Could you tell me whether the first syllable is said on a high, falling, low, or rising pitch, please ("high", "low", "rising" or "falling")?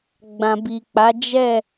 low